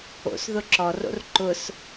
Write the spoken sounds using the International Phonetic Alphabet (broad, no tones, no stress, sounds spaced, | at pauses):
o̰ s ð ʊ ǁ ɔ r o̰ r ǃ ʊ s